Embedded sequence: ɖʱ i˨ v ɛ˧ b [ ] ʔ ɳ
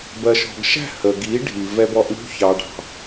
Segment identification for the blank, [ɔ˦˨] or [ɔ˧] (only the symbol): ɔ˧